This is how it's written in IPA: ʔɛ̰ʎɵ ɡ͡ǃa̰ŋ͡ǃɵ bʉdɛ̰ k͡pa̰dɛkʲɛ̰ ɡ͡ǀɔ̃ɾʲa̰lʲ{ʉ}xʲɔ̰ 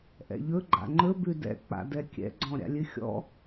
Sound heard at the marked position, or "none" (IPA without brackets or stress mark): ʉ